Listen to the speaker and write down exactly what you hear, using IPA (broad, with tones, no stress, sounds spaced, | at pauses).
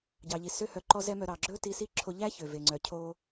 ɟ ɑ˩ ʎ i˩ s ø˥ h œ˧ ǃ ɔ˥ z ɛ˥ m œ˧ ɾ ɑ˩ ɡ͡ǁ ɵ˥ t i˧ s i˥ ǁʰ o˧ ʎ æ˥ ç ø˩ v e˩ ŋ͡ǀ œ˩ cʰ o˧